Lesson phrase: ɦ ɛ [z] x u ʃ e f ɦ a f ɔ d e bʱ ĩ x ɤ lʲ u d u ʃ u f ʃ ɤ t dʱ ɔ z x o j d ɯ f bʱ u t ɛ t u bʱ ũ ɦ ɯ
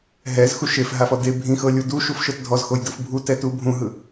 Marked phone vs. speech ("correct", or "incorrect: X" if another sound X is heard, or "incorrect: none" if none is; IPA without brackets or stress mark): correct